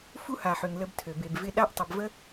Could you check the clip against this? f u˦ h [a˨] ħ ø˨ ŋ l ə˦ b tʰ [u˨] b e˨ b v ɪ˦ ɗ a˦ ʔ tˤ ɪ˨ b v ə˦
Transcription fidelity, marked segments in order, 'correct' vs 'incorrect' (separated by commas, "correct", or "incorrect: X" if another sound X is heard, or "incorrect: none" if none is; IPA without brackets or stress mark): correct, incorrect: ø˨